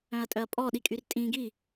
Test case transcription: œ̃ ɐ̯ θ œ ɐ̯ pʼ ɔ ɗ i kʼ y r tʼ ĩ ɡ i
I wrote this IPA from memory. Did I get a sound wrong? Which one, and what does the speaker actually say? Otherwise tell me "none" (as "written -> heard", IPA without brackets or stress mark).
θ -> tʼ